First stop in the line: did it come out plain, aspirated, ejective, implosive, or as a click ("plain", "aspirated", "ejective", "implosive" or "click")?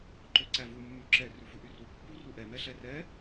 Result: click